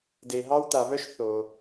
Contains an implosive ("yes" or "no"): no